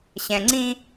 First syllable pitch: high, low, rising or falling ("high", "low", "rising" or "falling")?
low